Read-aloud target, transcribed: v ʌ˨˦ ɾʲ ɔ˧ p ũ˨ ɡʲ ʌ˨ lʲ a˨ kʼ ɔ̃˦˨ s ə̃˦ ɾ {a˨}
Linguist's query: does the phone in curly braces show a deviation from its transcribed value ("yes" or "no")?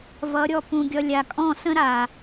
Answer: no